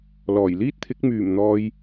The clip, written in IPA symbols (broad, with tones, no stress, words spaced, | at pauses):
lɔː˨˩jliː˥t̚t̪ʰɪ˨˥k̚ myː˨˩mn̪ɔː˨j